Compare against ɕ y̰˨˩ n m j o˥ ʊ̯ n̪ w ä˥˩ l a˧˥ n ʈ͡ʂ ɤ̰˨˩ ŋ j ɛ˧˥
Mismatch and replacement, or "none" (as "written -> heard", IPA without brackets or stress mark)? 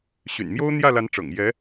w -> j